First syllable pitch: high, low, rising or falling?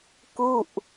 falling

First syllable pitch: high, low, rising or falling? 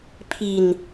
low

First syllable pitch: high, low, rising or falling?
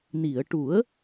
low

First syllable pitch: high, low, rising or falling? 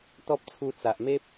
high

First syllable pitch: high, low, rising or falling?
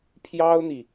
high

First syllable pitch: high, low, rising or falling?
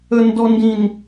high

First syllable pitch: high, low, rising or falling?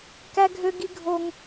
high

